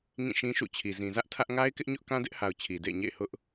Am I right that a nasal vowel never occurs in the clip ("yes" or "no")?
no